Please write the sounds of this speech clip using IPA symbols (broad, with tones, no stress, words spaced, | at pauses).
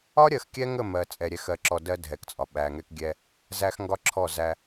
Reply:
ɒ˦ɾʲɜ˨xkʲɛ˦ŋə˦˨ mɜ˨ t͡sʼɛ˨ɾʲɛ˨xɜ˨ǁɔ˨ dɜ˦ dʱɛ˨kt͡sʼɒ˨ ɓæ˨ŋɛ˦kɡʲɛ˦ | zæ˦x ŋɡɒ˦ǁʰɔ˦˨ zæ˦